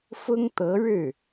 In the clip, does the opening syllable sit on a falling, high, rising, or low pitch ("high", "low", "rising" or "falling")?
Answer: high